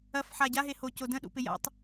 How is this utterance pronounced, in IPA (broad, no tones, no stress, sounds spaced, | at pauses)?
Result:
ɐ f ħ a ɟ a ɦ e h o c o d ə̃ ɗ ṵ p ɪ j a̰ tˤ